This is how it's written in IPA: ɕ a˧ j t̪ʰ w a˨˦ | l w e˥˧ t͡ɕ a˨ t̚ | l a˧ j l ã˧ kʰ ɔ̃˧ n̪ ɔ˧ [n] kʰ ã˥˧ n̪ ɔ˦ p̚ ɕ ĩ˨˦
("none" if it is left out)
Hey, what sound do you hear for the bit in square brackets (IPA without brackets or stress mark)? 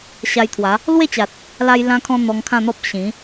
ŋ